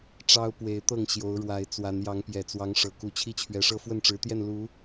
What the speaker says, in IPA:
ʈ͡ʂ ɑ˦ ʊ̯ p w e˨˦ ɪ̯ t̪ ɤ˥˨ ŋ ɕ j o˨˦ ʊ̯ ɻ w a˨˦ ɪ̯ t͡s w a˨˦ n j ɑ˨˦ ŋ p j ɛ˨˩ t͡s w ɑ˨˦ ŋ ʂ ɤ˨˩ k u˨˦ t͡ɕʰ i˦ t͡ɕʰ ɥ ɛ˨˦ ʂ ɤ˦ f w ə˥˨ n ʈ͡ʂ ɻ̩˨˦ t̪ j ɛ˥˨ n l u˨˦

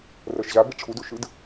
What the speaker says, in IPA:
r ɤ ʃ ʑ a b i ʈ͡ʂʰ u d u ʃ ɯ d

